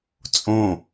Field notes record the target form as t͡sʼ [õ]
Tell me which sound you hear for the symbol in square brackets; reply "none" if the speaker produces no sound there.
õ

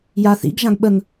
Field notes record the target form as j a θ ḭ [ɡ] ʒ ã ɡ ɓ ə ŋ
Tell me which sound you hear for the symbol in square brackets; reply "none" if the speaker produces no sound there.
ɡ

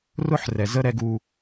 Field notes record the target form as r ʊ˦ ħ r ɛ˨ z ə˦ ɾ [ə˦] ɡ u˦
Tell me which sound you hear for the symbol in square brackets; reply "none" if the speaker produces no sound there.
ɛ˦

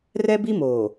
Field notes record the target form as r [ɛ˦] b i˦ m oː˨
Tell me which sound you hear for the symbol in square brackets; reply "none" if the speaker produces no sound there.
ɛ˦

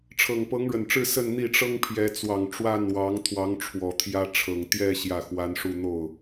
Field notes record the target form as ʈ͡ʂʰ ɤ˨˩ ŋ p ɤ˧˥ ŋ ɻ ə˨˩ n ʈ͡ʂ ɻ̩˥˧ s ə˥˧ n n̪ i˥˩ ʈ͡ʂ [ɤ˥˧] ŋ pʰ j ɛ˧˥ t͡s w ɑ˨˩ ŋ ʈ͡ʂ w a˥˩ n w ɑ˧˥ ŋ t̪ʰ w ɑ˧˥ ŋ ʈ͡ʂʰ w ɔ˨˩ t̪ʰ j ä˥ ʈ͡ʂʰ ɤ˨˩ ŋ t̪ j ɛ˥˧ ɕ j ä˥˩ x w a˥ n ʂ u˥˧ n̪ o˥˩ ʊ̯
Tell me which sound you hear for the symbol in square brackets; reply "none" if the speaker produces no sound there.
ɤ˥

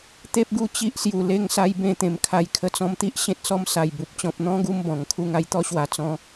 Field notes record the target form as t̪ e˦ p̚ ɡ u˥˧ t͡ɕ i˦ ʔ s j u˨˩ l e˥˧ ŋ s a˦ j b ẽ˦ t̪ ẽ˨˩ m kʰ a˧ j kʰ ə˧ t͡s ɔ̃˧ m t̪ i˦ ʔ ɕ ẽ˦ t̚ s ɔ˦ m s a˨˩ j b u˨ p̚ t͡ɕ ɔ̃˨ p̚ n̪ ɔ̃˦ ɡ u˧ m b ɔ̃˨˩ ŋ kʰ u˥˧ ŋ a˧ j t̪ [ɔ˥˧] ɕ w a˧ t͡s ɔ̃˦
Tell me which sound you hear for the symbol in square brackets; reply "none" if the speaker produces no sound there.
ɔ˦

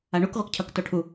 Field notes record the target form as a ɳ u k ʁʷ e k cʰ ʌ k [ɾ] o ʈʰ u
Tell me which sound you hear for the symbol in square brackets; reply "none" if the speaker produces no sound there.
t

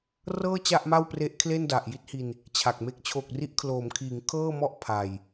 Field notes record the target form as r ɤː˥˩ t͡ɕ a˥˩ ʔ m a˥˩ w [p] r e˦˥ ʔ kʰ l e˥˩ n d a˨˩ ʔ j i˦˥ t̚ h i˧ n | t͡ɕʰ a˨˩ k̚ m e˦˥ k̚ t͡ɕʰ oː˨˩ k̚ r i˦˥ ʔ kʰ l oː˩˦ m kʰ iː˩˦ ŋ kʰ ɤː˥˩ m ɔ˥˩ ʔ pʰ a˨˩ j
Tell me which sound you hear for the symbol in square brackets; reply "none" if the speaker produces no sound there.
p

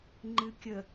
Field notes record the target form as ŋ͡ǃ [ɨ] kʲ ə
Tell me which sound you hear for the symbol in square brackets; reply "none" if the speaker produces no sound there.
ɨ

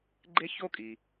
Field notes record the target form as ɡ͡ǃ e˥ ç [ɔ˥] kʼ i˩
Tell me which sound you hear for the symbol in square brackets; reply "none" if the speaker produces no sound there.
o˥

